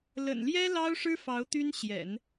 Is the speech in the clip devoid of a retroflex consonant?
no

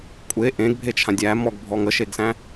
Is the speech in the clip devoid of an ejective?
no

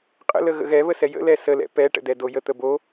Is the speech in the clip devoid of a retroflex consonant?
no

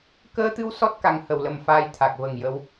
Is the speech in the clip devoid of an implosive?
yes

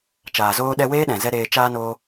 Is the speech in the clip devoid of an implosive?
no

